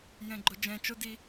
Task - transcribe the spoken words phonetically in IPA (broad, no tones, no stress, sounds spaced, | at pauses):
j ɛ̃ ɡ͡ǃ o d͡ʒ ɛ̃ t͡ʃ o d i